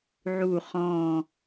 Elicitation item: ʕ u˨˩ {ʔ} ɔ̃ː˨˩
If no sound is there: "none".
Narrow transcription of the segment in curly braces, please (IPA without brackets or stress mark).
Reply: χ